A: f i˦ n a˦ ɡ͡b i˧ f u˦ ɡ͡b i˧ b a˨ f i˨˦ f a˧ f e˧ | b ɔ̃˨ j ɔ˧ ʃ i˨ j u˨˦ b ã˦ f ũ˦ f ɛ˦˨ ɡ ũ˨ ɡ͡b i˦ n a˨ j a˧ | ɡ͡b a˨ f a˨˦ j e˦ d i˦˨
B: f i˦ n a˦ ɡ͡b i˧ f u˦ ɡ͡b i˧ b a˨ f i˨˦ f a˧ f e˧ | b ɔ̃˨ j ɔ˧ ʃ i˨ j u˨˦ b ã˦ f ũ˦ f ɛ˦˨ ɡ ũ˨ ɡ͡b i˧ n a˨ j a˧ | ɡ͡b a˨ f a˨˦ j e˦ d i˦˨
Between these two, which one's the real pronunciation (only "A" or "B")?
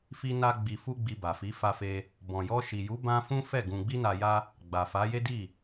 B